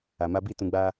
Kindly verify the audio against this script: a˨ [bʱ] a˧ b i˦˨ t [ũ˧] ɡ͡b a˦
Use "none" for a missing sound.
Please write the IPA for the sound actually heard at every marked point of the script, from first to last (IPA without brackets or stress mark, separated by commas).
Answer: m, ũ˧